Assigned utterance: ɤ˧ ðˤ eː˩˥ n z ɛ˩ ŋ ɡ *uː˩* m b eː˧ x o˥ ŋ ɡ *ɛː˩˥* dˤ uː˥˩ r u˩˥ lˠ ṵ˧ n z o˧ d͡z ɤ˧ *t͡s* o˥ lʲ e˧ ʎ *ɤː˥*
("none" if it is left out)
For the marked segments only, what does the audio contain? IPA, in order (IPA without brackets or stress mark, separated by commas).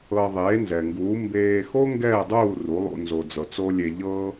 uː˩˥, ɛː˥˩, t͡s, ɤː˥